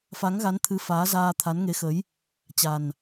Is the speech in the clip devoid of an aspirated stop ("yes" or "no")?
no